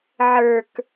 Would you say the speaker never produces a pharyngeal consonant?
no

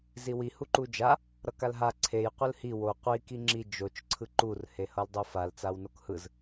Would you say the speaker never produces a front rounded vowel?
yes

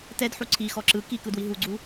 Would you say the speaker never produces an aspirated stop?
no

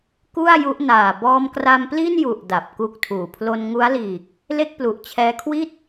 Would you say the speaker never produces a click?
yes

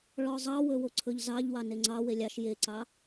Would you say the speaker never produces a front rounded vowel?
yes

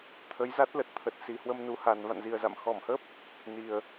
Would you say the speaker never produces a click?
yes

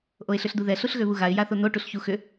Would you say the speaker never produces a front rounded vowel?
no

